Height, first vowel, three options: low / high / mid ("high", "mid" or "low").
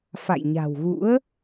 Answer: low